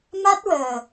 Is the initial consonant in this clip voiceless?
no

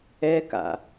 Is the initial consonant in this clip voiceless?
yes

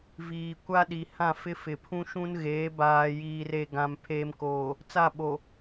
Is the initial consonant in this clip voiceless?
no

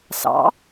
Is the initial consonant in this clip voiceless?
yes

